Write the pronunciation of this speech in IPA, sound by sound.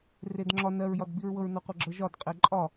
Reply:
r e d ŋ͡ǁ ɒ n ɜ ɹ j ɒ d b i ɹ w ɤ ɹ n ɔ qʷ ɤ ɡ͡ǁ ɤ ʒ ɒ d qʼ e ǃʼ ɒ

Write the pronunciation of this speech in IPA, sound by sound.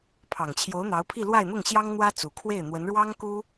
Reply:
pʰ ɑ˨˩ ŋ t͡ɕʰ j o˧˥ ʊ̯ n̪ ɑ˧˥ ʊ̯ pʰ i˥˧ l w a˥˧ ɪ̯ n̪ ʊ˥˩ ŋ ɕ j ɑ˥ ŋ n̪ w ä˥ t͡s u˨˩ kʰ w e˥˩ ɪ̯ n̪ w ə˧˥ n ɻ w ɑ˥ ŋ k u˥

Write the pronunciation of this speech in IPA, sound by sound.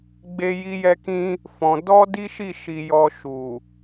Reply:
ɡ͡b e˦ j i˦ j ɛ˦ k ĩ˦ | f ɔ̃˧ d ɔ˦ d i˦ ʃ i˦˨ ʃ i˧ j ɔ˧ ʃ u˨

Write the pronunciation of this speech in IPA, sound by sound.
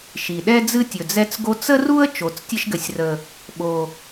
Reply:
ʃ i˨˩ ɗ ɛ˦ d͡z ɨ˦ tʲ ɵ˨˩ d͡z ɛ˦ t͡s ɡ o˦ t͡s ə˦ r u˦ ə̯ t͡ʃ o˨˩ t͡s tʲ ɘ˦ ʃ ɡ ɘ˨˩ sʲ r ə˨˩ | ɓ o˨˩

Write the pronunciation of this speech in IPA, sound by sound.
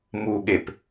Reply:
m u ɠ e p

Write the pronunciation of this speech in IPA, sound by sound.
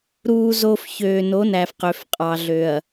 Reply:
ɾ uː˨ z o˨ f ç øː˨ n o˨˦ n æ˨ f q ø˨ f qʼ ɑ˨ ɮ ø˨ ɐ̯

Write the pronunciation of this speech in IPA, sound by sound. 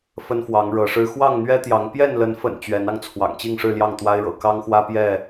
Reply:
f ə˦ n f w ɑ˨˦ ŋ ɻ ɤ˨˦ ʂ ɻ̩˦ x w ɑ˥˨ ŋ n̪ ɥ ɛ˦ t̪ j ɑ˨˦ ŋ p j ɛ˥˨ n l ə˨˦ n f ə̰˨˩ n t͡ɕ ɥ ɛ˨˦ n ɑ˧ ŋ t͡sʰ w ɑ̰˨˩ ŋ t͡ɕ i˥˨ ŋ ʂ ɻ̩˥˨ l j ɑ˥˨ ŋ t̪ w a˦ ɪ̯ ɻ ɤ̰˨˩ k ɑ˦ ŋ x w ä˦ p j ɛ˥˨

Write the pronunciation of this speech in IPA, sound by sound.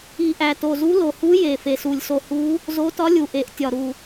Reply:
i˨˩ ʔ æ˨˩ t o˨˩ z u˧˥ l o˨˩ h u˧˥ j e˨˩ f e˨˩ s u˨˩ lʲ s o˨˩ h u˧˥ | z o˧˥ t ɒ˧˥ lʲ u˨˩ ʔ e˨˩ ʔ tʲ ɒ˨˩ ɾ u˨˩

